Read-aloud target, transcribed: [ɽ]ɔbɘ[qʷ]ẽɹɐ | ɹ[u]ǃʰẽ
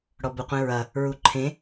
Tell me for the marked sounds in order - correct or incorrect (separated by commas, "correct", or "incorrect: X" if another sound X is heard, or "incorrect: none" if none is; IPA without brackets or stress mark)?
correct, correct, correct